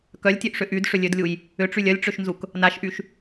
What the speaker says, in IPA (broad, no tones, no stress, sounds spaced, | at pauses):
k œ lʲ tʲ ø ʔ ʂ ʏ ʔ y d ʂ ʏ lʲ ø d lʲ u j | ʏ ʈ͡ʂ y lʲ œ lʲ ʈ͡ʂ ø ʃ n z u k | n a ʃ ʔ y ʃ